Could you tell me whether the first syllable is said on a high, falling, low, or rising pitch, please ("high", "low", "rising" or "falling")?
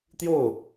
falling